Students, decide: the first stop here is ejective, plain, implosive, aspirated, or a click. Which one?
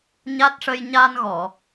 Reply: plain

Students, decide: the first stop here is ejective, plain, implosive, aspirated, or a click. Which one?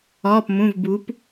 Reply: plain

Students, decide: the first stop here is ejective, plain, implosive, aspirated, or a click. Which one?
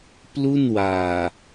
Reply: plain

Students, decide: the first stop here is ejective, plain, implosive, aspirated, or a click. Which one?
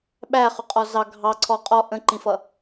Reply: implosive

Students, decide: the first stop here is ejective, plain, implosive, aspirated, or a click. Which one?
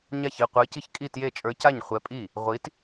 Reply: plain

